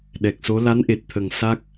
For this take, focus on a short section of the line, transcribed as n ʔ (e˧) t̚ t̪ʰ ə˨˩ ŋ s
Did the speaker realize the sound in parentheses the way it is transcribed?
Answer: no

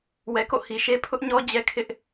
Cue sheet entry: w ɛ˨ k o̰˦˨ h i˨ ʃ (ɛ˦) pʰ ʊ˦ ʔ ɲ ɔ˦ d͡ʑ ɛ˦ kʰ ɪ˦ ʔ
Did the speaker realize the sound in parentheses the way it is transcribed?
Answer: no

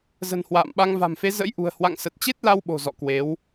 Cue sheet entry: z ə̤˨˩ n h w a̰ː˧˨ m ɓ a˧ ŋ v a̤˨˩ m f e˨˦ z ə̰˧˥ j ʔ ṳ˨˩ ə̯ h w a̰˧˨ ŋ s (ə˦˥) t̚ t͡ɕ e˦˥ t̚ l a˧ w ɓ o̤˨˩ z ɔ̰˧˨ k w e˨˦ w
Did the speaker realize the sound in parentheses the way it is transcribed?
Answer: no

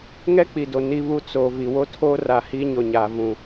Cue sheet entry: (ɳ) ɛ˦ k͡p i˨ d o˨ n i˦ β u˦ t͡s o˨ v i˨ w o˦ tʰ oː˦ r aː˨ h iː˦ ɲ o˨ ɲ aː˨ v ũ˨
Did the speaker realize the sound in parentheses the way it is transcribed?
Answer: no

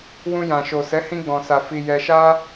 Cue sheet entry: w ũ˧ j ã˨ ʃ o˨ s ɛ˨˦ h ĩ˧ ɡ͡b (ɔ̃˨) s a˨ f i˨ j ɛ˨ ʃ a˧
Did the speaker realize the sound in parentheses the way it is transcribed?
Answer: yes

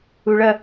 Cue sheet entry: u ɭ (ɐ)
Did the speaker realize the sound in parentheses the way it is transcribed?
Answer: yes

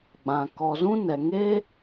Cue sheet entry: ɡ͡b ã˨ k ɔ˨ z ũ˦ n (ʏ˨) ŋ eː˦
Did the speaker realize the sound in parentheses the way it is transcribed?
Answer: no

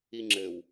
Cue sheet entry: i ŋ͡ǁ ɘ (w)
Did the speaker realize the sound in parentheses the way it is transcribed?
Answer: yes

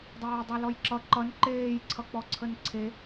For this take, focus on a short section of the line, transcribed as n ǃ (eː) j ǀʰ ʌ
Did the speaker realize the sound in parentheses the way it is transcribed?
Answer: yes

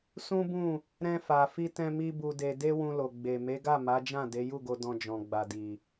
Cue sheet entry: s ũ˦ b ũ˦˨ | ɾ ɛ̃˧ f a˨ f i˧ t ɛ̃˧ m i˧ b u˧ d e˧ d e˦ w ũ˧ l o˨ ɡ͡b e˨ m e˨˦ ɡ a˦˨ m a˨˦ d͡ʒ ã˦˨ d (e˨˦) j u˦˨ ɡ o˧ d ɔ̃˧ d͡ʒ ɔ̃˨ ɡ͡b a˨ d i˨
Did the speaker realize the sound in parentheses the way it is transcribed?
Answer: yes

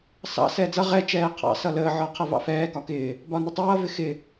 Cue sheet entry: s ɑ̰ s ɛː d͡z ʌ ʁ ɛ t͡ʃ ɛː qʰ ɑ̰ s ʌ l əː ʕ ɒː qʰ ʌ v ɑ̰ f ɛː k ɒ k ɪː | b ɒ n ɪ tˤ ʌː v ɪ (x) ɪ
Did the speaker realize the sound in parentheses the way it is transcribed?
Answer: yes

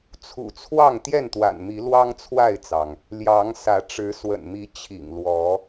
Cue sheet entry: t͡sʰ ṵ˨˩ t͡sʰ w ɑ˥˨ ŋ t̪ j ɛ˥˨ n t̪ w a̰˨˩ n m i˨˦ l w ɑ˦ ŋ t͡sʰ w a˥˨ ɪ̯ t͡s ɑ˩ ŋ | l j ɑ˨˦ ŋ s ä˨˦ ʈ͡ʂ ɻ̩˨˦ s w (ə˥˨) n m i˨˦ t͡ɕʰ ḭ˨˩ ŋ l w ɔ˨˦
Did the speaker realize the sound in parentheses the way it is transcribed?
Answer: no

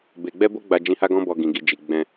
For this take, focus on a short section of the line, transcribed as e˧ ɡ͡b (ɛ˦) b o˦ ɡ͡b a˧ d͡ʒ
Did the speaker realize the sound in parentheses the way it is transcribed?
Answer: yes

